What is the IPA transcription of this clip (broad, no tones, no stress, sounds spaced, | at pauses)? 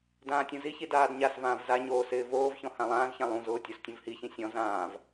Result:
d ãː tʲ ũ z i ç i d aː d ɲ a s v ãː v z a ɲ oː s ɪː v oː v ç ɔ̃ h ã lˠ ãː z ç ã lˠ ũ z ʊː tʲ o s tʲ ũ v h i ç ĩ sʲ ɔ̃ z ãː v